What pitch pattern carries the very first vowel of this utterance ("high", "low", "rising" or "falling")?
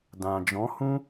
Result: low